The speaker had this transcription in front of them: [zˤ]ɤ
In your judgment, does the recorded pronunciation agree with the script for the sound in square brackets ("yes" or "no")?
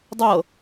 no